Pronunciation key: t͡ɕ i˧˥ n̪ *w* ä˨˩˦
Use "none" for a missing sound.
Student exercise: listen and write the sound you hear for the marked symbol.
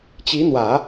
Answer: w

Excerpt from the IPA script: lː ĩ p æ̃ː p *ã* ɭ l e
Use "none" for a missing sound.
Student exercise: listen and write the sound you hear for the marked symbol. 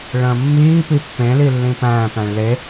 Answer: æ̃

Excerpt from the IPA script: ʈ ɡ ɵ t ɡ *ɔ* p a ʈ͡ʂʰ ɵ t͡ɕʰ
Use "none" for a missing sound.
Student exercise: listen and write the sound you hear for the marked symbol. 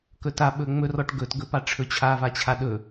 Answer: ɵ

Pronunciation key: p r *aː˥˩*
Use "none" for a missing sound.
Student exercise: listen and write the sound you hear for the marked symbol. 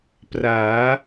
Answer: aː˩˦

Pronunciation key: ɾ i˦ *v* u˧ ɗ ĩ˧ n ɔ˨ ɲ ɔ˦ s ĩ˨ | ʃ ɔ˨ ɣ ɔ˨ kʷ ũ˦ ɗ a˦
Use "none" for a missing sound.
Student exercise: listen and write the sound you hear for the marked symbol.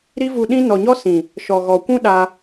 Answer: v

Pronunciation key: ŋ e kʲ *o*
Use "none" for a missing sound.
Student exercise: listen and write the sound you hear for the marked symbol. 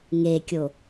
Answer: o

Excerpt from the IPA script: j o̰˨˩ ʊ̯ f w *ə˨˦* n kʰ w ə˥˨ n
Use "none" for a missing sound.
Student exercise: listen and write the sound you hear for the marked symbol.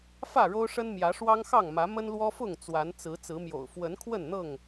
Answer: ə˨˦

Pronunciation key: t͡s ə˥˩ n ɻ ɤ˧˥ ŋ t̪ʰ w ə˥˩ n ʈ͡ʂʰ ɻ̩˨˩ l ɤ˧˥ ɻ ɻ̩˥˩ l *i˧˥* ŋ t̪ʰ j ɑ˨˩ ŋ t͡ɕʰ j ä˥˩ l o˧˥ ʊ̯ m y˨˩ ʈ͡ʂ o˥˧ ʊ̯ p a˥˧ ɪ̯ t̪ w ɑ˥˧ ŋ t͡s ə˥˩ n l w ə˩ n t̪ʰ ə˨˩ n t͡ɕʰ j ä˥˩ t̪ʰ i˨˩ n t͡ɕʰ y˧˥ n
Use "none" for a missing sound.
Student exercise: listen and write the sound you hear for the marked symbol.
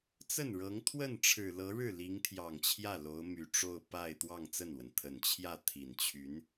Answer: i˧˥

